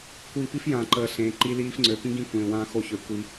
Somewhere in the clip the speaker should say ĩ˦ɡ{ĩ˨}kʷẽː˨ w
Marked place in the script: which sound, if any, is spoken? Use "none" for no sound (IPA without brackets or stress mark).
ĩ˦